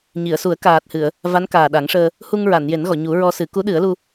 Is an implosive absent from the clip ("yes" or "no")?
no